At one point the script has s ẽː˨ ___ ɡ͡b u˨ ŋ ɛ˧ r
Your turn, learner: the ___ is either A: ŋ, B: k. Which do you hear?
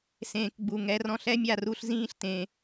B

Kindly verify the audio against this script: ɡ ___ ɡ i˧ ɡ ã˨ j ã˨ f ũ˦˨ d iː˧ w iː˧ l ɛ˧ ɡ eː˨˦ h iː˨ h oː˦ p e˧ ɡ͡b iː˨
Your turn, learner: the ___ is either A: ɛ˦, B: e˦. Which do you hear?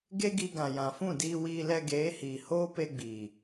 B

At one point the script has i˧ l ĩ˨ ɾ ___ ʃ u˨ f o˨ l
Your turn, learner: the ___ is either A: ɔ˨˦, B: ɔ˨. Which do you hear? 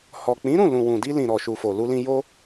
B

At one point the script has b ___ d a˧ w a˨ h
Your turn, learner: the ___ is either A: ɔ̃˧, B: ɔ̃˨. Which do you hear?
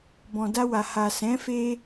B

